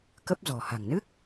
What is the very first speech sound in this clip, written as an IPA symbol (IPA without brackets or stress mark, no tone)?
k